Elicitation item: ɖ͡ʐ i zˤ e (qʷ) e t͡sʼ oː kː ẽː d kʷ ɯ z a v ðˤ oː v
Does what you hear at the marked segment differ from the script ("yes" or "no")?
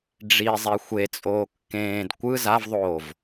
yes